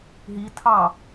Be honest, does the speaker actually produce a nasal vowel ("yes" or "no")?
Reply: no